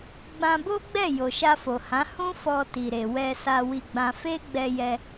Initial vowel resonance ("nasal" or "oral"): nasal